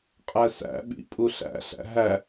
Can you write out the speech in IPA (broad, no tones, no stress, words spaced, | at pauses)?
qʼæsæ̰ ɓḭ pʼuɬæ̰ɬæ̰ ɦæ